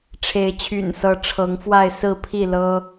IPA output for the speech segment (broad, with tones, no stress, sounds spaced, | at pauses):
ʈ͡ʂʰ e˨˦ ɪ̯ t͡ɕʰ y̰˨˩ n s ɤ˨˦ ʈ͡ʂʰ ɤ˨˦ ŋ f w a˥˨ ɪ̯ s ɹ̩˥˨ pʰ i˥˨ l ɤ˦